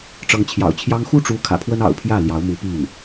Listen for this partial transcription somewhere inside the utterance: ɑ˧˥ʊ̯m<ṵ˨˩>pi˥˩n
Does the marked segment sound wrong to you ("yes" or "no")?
yes